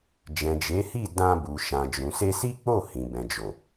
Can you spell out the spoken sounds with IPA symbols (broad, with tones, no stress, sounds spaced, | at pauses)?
d͡ʒ ɛ̃˨ d͡ʒ e˨˦ h i˦˨ d ã˧ b u˨ ʃ ã˨ d͡ʒ ũ˨ s e˧ s i˦ k͡p o˦˨ h ĩ˨ b ɛ̃˨ d͡ʒ o˨